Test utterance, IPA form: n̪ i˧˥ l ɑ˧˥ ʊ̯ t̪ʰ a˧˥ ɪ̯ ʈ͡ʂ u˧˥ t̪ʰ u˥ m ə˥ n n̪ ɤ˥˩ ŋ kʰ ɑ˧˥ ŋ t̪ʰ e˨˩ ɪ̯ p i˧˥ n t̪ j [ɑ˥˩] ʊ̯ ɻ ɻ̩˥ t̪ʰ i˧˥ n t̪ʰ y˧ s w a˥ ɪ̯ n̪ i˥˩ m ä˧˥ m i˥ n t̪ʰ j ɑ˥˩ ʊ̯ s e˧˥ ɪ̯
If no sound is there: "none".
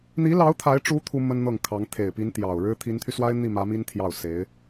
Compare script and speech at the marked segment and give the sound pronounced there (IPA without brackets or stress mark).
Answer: ɑ˨˩